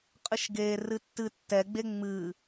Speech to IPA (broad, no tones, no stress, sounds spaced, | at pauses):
qʼ ɨ ʃ ɡ e r ɨ tː ɨ tː ɛ ɡ͡b e ŋ͡m ɨ